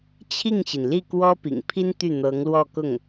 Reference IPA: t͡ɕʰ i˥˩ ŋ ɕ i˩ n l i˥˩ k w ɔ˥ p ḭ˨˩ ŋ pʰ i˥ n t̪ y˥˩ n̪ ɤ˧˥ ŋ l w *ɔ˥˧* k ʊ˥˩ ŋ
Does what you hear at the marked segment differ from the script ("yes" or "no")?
no